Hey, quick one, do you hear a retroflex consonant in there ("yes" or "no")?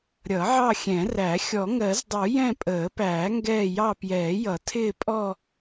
no